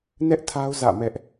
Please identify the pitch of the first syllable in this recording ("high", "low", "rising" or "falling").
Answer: high